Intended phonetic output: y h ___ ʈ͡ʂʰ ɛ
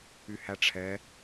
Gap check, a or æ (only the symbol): æ